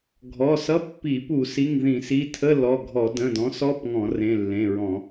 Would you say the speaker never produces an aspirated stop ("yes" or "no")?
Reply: no